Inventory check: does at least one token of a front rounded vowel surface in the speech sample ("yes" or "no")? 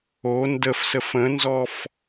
no